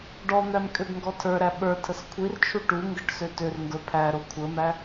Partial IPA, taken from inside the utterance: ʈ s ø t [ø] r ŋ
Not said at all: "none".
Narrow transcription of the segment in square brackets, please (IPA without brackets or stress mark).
ø